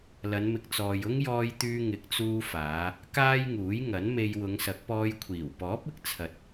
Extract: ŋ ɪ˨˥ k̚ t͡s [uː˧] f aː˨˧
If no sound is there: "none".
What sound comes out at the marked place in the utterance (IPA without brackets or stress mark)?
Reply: uː˧